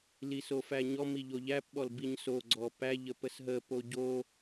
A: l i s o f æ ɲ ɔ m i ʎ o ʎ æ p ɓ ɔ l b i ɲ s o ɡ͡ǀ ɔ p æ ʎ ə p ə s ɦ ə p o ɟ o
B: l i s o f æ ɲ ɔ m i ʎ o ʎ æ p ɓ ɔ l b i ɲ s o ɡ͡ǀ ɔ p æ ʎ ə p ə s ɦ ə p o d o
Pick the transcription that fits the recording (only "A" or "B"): A